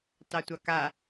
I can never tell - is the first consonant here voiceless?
yes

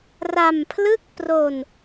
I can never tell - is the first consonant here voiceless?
no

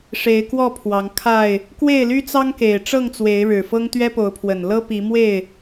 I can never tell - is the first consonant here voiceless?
yes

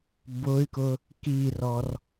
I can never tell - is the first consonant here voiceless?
no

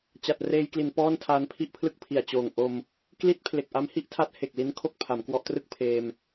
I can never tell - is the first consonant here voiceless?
yes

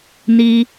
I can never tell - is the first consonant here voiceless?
no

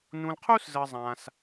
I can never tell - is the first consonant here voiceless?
no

